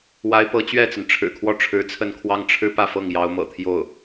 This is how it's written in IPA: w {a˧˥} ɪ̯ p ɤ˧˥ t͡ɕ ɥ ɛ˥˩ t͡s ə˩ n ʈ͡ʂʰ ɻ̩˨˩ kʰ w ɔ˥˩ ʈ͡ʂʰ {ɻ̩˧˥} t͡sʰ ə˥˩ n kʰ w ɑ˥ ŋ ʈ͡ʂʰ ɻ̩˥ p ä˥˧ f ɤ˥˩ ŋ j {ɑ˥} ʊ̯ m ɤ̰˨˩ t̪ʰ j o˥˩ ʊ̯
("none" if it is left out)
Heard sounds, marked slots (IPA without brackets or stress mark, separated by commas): a˧˥, ɻ̩˧˥, ɑ˧˥